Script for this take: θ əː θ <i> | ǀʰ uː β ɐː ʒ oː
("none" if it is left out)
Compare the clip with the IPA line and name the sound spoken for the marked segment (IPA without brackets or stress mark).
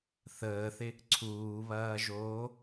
ɪ